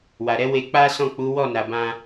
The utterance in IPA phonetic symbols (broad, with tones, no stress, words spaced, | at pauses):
wa˨ɾɛ˨˦ we˧ k͡pa˦sɔ̃˦˨k͡pu˨˦ wɔ˦˨na˨bã˧